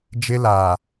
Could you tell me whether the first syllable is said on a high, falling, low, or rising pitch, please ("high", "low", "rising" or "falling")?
high